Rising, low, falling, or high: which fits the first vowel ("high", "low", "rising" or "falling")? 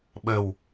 low